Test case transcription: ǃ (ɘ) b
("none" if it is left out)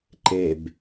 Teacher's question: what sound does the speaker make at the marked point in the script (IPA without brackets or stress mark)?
e